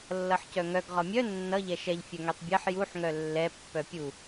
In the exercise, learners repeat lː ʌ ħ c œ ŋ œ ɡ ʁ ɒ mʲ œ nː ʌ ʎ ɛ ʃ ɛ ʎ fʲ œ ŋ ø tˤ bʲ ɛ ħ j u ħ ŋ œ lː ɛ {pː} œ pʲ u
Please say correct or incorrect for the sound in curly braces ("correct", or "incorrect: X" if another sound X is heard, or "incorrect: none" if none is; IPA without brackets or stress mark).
correct